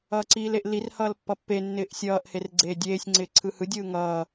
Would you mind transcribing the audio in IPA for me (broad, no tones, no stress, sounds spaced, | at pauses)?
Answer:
ʌː ǀ iː l e ʔ l i r h ʌː l pː ʌ pː e nː ɪː ʔ sʲ ʌː ʔ h e r ɡ͡ǀ eː dʲ eː sʲ ŋ͡ǀ ɪː ǀʰ ɯ h ɯ dʲ ɯː ŋ ʌː